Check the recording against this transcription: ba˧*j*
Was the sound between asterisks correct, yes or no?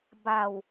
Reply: no